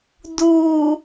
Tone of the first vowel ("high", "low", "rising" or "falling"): low